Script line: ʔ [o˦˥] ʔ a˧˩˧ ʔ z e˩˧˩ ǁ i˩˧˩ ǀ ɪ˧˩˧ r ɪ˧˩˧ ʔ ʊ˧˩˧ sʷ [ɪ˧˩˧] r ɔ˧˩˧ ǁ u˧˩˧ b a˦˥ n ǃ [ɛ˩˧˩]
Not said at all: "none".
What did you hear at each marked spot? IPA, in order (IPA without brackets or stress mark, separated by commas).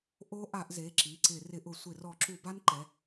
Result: o˦˥, ɪ˧˩˧, ɛ˩˧˩